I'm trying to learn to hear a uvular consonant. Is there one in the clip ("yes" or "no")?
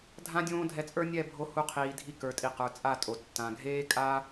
yes